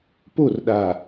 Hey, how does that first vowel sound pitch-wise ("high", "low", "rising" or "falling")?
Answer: falling